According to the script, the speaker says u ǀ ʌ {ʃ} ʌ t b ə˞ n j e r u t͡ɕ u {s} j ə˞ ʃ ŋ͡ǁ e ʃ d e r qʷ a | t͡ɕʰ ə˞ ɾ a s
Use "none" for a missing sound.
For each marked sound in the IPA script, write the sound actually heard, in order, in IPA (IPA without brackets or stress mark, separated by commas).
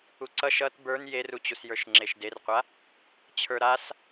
ʃ, s